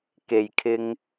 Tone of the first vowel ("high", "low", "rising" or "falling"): low